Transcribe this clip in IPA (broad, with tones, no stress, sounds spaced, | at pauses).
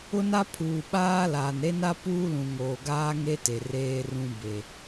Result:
ʊ˦ n a˦ pʰ uː˨ ɓ aː˦ l aː˨ n ɾ e˦ n a˦ p uː˦ l ũ˨ ŋ oː˨ ɡ aː˦ ŋ e˦ t e˨ r eː˦ r ũ˦ b e˨